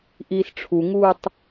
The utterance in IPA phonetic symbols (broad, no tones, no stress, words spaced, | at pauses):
ʔiːsʈ͡ʂʰuŋuːtˤ